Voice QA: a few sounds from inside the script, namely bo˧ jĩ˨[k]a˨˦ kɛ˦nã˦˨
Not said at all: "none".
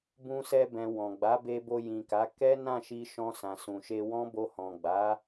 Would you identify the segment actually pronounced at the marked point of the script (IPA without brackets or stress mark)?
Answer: k